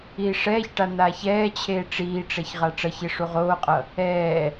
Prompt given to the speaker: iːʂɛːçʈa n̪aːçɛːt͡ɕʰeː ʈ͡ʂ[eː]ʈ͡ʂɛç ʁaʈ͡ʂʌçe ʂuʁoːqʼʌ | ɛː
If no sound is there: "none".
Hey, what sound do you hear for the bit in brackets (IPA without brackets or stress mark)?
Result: iː